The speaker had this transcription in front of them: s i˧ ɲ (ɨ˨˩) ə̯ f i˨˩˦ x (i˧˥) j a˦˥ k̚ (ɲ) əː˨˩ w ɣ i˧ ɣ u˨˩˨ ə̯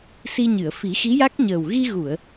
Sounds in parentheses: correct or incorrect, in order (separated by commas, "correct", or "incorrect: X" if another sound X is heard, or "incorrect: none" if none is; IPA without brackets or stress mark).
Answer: incorrect: ɨ˨˩˨, correct, correct